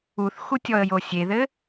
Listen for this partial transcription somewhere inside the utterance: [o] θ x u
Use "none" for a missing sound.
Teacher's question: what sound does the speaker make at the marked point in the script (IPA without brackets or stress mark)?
u